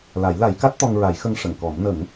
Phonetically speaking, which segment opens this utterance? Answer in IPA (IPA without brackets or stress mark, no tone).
l